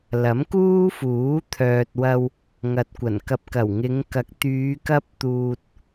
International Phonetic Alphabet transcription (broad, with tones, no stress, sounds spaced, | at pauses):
l ɐ˨˥ m k uː˥ f uː˨˥ t̪ʰ œː˨ t̚ w ɐ˧ w | ŋ ɐ˨ t̚ kʷ ɐ˨˩ n k ɐ˧ p̚ k ɐ˨˩ w ŋ ɪ˨˧ ŋ k ɐ˨˥ k̚ t̪ yː˨˧ k ɐ˥ p̚ t̪ uː˧ t̚